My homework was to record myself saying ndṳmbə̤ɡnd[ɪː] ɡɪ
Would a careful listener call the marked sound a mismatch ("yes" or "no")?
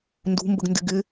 yes